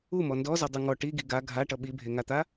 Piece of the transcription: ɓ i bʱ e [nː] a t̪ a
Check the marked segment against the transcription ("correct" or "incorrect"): incorrect